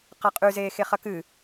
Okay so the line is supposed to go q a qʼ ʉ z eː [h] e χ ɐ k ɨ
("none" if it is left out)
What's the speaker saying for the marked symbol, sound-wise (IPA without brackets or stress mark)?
x